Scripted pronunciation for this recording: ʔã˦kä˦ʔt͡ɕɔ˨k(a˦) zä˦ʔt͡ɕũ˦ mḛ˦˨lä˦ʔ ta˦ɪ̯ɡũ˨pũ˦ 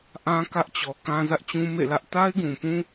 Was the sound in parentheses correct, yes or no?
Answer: no